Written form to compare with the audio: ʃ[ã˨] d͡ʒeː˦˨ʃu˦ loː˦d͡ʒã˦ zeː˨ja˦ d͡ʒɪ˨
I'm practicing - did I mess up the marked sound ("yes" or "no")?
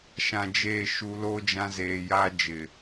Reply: no